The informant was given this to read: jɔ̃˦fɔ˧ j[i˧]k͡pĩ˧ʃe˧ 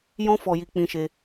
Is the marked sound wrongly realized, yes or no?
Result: no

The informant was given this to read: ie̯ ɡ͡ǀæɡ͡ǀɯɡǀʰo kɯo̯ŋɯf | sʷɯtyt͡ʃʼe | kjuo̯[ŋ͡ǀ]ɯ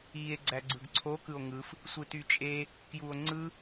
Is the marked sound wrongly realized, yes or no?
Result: no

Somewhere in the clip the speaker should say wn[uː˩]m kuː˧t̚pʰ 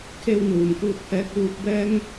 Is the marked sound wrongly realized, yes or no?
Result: no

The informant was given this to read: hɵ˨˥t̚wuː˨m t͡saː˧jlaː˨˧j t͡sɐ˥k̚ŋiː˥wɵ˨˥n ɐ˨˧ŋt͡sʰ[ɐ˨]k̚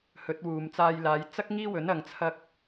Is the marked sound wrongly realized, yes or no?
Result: yes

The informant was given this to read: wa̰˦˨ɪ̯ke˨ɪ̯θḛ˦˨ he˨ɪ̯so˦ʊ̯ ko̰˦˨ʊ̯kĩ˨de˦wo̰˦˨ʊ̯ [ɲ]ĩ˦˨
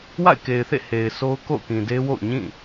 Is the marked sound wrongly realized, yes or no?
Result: no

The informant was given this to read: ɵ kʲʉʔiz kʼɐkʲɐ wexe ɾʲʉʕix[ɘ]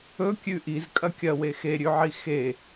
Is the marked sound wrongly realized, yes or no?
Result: yes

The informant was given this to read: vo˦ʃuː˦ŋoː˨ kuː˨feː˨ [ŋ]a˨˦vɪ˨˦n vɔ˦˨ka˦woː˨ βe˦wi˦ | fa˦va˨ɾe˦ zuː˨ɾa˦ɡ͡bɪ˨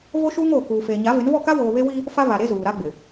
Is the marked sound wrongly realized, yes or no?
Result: yes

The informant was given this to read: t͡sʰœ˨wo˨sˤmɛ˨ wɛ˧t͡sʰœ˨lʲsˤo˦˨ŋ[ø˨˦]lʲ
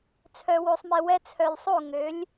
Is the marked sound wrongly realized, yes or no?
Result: no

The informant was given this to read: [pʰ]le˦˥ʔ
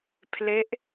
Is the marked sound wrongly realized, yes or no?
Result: no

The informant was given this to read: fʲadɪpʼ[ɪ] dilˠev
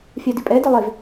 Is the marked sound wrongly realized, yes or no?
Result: yes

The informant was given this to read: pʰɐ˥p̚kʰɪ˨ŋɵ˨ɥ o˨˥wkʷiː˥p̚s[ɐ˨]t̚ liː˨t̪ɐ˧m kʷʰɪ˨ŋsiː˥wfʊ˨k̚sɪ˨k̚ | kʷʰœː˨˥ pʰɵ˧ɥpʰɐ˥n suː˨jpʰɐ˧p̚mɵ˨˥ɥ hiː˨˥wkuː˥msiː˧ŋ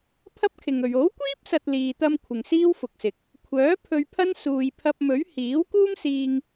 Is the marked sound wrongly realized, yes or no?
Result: no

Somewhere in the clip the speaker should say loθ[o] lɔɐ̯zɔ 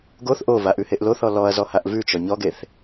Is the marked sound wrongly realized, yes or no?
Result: yes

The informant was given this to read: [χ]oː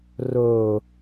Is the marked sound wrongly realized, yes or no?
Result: yes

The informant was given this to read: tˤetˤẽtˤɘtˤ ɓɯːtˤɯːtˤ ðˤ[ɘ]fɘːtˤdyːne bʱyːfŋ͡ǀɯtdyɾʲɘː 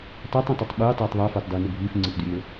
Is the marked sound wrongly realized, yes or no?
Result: yes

